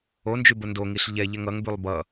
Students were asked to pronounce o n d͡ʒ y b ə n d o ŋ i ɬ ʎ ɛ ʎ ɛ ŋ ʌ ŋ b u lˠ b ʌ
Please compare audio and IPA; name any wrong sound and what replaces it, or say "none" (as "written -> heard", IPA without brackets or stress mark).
u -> y